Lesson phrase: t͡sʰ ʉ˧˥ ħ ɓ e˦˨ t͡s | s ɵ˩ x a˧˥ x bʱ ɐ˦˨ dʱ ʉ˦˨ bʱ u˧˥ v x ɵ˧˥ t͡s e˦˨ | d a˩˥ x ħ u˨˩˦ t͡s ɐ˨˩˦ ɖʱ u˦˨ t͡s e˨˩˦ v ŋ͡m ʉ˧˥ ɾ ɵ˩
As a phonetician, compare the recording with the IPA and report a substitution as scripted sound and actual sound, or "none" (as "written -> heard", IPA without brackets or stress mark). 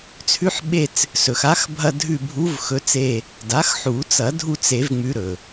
ɖʱ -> dʱ